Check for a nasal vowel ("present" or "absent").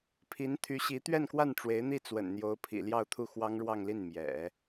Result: absent